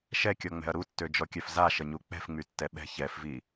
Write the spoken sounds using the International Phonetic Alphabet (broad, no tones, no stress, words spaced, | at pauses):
ʃɛkʲɔŋ͡mɛ̤ɐ̯ ɾutːød͡ʒɔkʲœf zaʃəɲu k͡pɛ̤fŋ͡mytːɛ ɓɛ̤ çɛfvi